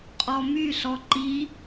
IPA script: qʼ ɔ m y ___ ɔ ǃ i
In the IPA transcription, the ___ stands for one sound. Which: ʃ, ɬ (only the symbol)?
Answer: ɬ